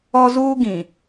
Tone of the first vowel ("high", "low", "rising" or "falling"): high